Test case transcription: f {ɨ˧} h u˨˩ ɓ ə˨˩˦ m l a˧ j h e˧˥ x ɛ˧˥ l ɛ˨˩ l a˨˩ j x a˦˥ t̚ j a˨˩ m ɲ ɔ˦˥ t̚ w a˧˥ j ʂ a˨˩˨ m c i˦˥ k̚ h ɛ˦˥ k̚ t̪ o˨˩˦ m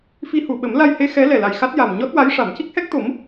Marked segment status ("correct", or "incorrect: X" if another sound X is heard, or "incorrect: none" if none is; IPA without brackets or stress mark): incorrect: i˧